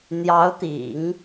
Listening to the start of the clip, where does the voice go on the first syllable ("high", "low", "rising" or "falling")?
rising